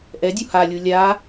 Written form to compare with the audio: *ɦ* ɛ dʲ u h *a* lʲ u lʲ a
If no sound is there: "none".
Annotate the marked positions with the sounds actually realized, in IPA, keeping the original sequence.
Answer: ʔ, a

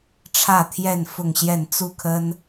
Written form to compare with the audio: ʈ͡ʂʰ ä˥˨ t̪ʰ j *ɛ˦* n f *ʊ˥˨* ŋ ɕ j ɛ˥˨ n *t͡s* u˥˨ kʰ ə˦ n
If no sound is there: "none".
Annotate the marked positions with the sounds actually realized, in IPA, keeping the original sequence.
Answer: ɛ˥˨, ʊ˥˨, t͡s

